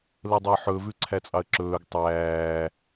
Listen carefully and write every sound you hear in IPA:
l ə dˤ ɵ ħ ɵ v ʉ ǀʰ æ t͡sʼ ɑ ə̯ ǁ ɵː ɡ tˤ æː

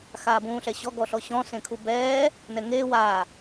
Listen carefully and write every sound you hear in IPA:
x aː b ũː ɬ ɛ ɕ ɔ ɡ ɔ ɬ ɔ ɕ ɔ̃ s ẽ kʰ u b ɛː | n ɛ ŋ eː w a

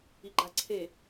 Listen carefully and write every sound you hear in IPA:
i ɡ͡ǃ a ǀʰ e

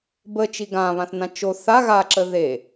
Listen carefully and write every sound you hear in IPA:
b ə t͡ʃ i ɡ ã β ã θ n ã t͡ʃ o θ a ɣ a ǁ ə ð e

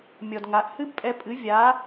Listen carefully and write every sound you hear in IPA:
mʲ ɔ˨ d ŋ a˨˦ ʔ h ɨ˦ b pʼ ɛ˧ pʼ ɨ˨˦ vʲ a˨˦

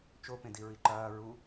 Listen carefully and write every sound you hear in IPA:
t͡ʃ o p ẽ d i ɹ i ǃ ɐː ɹ u

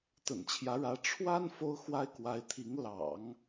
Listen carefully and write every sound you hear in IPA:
t̪ ə̰˨˩ n t͡ɕʰ j ä˧˥ ɻ ä˧˥ ʈ͡ʂʰ w a˥ n f o˥ ʊ̯ x w a˥ ɪ̯ k w a˧˥ ɪ̯ t̪ʰ i˧˥ ŋ l ɑ̰˨˩˦ ŋ

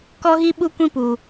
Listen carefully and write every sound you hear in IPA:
k ɔ˦ ɣ i˦ ɓ u˦ kʷ ĩ˦ p u˨

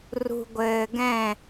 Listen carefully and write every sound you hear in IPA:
r ṳ˨ ɡʷ ɘː˨ ɡ ɛ̃˦˨

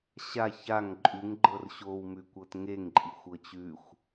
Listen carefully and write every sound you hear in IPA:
ɕ a ç a ŋ ǃʼ ʉ ŋ ɡ͡ǃ ɤ r ɕ o w m ʉ kʷ ɤ t ŋ e ŋ ǃʼ i xʷ ɤ t͡ɕ ʉ xʷ

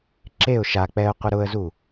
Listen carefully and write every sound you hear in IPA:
ǁ e ʊ̯ ʃ a k͡p ɛ ʊ̯ qʷ ɪ ɾ ʊ ə̯ z u

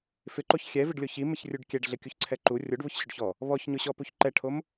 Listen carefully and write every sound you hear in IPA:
f ɪ ǃ o ç xʲ ɛ v ɪ ɖ lʲ o ç i m ɪ ç rʲ u ɖ kʲ ɛ ɖ ɮ ɪ kʲ u ç ǀʰ ɛ ǃ u rʲ o ɖ β ʊ ç ɕ ʊ ɖ ç ɔ | β ɔ ç ɲ ʊ ɕ ɔ p u ç ǃ ɛ ʈʰ o m

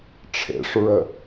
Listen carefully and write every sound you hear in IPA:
ʈ͡ʂʰ ḛ ʂ ɹ ə

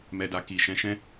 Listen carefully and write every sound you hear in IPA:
m ɛ˨ d a˨ k i˨ ʃ ɛ̃˨˦ ʃ ɛ̃˦

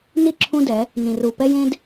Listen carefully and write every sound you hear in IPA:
n i˦˨ ǁʰ ũ˦ d ɛ˨˦ | n ĩ˨ r u˨ p ɛ˦ j ẽ˦ d

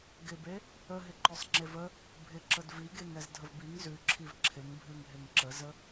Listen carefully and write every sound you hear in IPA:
ɡ ɪ b e | ə ɦ ɪ ǃ œ sˤ ŋ͡ǁ e v ə | bʱ ɪ ǁ ə d v i ɡ e ŋ ɛ z dʱ ə v b i ŋ z ʉ ǁʰ i v ǁʰ ɪ ŋ bʱ ʉ ŋ ɦ ɪ ŋ ǁ ə z ə

